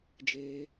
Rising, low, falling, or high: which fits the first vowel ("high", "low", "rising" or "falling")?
high